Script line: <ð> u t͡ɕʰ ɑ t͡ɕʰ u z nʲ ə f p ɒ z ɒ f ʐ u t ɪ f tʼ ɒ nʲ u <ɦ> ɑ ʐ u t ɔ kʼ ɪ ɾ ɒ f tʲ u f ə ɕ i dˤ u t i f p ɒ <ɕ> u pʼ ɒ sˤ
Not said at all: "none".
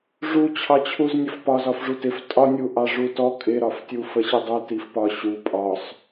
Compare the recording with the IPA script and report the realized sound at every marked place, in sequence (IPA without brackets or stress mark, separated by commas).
ʐ, ʔ, ɕ